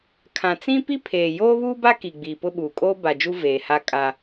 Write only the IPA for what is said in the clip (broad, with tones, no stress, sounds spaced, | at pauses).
kʰ ã˨ t͡s ĩ˦ p i˦ pʰ eː˨ j oː˦ β uː˦ b a˦ k i˨ ɡ͡b iː˨ p ʊ˦ ɓ uː˨ kʼ oː˦ b a˨ d͡ʒ u˦ v eː˨ h a˦ kʼ a˦